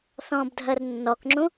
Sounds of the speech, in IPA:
θ ɔ̃ː b dʱ ɜ r nː ɔ k ŋ͡ǁ ũ

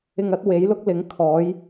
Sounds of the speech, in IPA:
ɪ˧ ŋ ɐ˨˥ t̚ w e˨˥ j l ʊ˥ k̚ l ɪ˨˥ ŋ kʰ ɔː˨˥ j

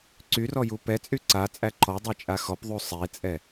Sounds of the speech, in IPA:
ǀ y r ɔ j u p ɛ t͡sʼ y ǀ a t͡sʼ æ ǃ ɔ dˤ ɛ t͡ʃʼ a x ɔ p ðˤ u sˤ e t͡sʼ ɛ

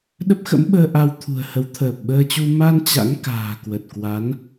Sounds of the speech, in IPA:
ɗ ə˦˥ p̚ x ə̰˧˥ m ɓ əː˧ ʔ a˧ w t̪ʰ ṳ˨˩ ə̯ h ə˨˦ w t̪ʰ əː˨˩ p̚ ɓ əː˧ t͡ɕ u˧ m a˧ n t͡ɕ a̰˧˥ ŋ k a̤ː˨˩ k w ə˨˩ t̚ k w a˨˦ n

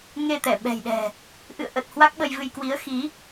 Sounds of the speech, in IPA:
ŋ e˧ t̪ ɛ˧˩ ɓ ɛ̤˨˩ j ɗ ɛ̤˨˩ | ʔ ɨ̰˧˨ ə̯ ʔ ə˨˩ t̚ h w a˦˥ k̚ ɓ ə˧ j v ɨ˧ j k w i˨˦ ə̯ x i˨˦

